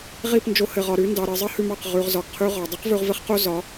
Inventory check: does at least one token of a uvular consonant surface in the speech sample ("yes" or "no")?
yes